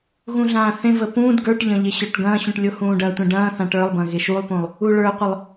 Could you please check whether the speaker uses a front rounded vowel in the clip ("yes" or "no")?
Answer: no